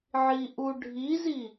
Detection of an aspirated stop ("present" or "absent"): absent